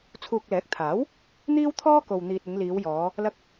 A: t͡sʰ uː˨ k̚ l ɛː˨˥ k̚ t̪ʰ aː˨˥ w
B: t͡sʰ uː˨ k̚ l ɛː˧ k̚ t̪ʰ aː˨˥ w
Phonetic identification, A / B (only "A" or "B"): A